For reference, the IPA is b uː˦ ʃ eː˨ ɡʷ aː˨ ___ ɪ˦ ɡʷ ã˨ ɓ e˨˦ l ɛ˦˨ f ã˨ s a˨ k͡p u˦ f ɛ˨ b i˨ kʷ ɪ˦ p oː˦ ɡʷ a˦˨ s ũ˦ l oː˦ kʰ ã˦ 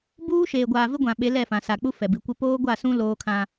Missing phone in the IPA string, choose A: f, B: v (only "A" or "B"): B